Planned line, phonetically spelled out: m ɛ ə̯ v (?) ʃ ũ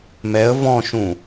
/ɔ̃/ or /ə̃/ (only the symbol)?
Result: ɔ̃